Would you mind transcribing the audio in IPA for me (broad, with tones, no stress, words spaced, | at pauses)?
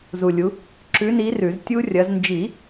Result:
zu˨lʲu˨˦ | ǁʉ˨˦ni˨˦ rʉ˨˩˦z tʲu˦˥rʲɐ˨˦z nd͡ʒi˨˩˦